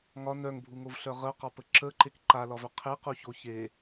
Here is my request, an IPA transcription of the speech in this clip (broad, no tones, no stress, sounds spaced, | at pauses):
ŋ ɒ n œ ŋ bʱ u ŋ o v ɬ œ ʁ ə ʊ̯ q ɒ p ə ǁ ə ǃ e k ǃ a l ɒ v œ qʰ e q u ç o ç e